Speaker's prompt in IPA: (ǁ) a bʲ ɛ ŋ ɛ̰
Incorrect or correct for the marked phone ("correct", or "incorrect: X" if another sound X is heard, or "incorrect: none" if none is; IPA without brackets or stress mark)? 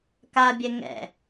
incorrect: k